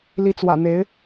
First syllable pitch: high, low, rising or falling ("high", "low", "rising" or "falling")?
rising